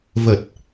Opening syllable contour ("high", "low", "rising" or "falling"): low